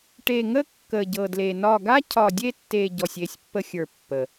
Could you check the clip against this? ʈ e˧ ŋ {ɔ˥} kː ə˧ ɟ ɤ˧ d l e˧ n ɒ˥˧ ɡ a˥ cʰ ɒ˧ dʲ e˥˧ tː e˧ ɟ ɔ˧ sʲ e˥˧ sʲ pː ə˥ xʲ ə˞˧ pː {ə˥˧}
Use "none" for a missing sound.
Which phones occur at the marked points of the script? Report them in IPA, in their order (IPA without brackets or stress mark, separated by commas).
ə˥, ə˧